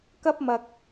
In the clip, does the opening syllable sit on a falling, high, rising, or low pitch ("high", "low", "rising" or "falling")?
high